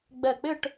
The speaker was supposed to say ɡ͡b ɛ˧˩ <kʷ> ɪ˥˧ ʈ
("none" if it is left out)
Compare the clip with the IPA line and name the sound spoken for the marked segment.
k͡p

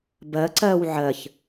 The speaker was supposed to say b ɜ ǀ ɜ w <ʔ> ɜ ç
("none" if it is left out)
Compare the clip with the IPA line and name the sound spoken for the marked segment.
ʕ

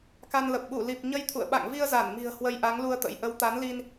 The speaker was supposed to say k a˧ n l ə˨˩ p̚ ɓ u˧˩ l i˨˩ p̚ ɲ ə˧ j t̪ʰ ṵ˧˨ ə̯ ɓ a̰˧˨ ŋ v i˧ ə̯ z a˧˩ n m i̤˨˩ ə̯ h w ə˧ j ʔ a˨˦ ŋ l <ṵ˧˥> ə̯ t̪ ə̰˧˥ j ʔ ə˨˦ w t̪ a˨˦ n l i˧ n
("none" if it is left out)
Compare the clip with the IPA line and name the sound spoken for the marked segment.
u˧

